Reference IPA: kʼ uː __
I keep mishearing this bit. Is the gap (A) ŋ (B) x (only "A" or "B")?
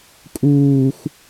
B